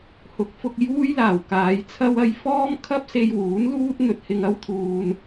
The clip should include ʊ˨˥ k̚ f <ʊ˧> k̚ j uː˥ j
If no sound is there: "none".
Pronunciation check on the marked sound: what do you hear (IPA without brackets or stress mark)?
ʊ˧